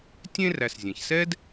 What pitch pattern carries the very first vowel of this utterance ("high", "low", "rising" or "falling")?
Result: high